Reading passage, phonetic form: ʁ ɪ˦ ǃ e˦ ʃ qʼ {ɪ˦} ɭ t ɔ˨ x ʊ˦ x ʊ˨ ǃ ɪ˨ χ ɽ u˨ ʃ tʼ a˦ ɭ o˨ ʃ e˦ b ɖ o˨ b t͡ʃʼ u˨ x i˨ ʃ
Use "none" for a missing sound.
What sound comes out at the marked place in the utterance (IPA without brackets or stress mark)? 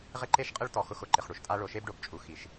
ɪ˦